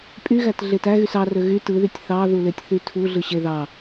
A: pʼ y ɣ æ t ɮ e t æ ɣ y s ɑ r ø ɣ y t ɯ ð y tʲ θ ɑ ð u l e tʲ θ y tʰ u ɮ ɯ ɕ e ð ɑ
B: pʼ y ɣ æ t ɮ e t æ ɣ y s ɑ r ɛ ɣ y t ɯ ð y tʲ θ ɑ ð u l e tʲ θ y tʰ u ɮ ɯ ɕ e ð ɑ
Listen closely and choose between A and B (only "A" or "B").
A